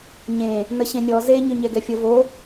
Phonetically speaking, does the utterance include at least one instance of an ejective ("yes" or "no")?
no